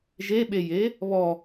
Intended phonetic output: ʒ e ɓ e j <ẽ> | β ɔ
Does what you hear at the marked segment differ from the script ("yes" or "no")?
yes